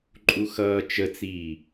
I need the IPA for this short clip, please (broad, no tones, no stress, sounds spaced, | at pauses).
ǃʼ u x ʌː t͡ʃ ə t͡s iː